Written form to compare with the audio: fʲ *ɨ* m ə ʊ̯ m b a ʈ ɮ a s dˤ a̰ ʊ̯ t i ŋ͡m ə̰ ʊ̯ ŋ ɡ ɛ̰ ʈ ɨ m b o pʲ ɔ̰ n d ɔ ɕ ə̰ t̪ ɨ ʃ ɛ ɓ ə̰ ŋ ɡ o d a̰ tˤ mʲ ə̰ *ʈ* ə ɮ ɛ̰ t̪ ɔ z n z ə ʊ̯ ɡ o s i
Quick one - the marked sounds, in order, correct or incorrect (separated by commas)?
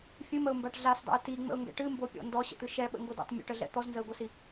correct, correct